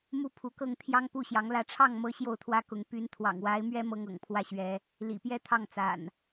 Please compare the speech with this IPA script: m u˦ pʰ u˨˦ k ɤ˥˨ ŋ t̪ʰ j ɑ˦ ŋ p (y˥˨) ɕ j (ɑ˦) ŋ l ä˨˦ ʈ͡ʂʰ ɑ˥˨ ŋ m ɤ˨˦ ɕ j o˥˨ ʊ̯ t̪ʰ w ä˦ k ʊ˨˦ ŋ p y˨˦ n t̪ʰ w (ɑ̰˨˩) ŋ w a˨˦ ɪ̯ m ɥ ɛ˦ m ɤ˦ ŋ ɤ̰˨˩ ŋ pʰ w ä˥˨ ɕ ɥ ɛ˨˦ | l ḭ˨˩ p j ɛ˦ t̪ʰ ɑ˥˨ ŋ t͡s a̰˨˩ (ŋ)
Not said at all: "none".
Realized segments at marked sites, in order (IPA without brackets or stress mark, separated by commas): u˥˨, ɑ˨˦, ɑ̰˨˩, n